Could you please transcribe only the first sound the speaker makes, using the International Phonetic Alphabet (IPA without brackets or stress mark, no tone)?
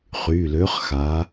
χ